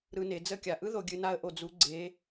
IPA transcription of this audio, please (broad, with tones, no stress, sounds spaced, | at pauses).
ɾ ɯ˧ n e˩˧ d͡z ə˧˥ kʲ a˩ ʔ ɯ˥ ð o˧ ɡʲ ɨ˧ n a˥ ə̯ ʔ o˧ d͡z u˧˥ ɡ͡ǀ e˧˥